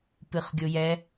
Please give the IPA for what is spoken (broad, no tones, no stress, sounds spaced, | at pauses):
p ɨ χ ɡʲ o j ɛ